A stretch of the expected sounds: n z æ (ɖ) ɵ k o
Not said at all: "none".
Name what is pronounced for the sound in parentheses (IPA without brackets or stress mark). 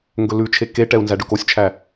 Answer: ɖ